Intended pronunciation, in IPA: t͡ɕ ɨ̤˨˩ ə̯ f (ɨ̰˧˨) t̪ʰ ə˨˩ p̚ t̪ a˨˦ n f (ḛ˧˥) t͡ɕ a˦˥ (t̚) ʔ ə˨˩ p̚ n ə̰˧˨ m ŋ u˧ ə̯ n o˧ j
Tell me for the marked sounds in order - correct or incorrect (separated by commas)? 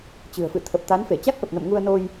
correct, incorrect, incorrect